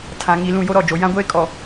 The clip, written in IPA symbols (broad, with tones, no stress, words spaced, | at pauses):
tʰã˨ŋi˨ lũ˦˨jo˦ɾɔ˦˨d͡ʒo˨ jã˦ɡʷeː˦kʼɔ˨